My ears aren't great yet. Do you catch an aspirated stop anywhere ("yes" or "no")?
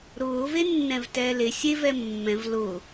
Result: no